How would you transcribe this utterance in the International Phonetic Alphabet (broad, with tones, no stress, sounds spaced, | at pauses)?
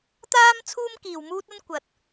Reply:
t̪ aː˥ m t͡sʰ uː˥ m k iː˨ w m uː˥ t̚ ɐ˥ n kʷ ɐ˨ t̚